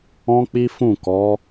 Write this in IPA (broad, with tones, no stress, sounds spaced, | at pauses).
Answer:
ɔ̃˦ k͡p i˦ f ũ˦˨ k ɔ˨˦